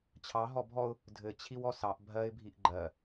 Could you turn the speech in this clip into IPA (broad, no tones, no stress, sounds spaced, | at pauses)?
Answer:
t͡ɕʰ ɑ ɦ ɔ bʱ ɔ ʊ̯ | dʱ ɘ t͡ɕʰ i w ɔ s ɑ ʔ bʱ ɜ ɪ̯ bʱ i ʔ ɡ͡ǃ ɜ